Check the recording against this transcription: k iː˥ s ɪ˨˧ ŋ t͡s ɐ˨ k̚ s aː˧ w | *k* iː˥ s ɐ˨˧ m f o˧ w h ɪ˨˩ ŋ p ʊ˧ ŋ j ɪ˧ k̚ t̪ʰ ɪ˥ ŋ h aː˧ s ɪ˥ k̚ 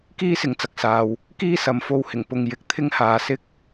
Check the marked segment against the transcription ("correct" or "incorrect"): correct